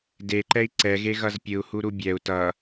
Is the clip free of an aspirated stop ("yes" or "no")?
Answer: yes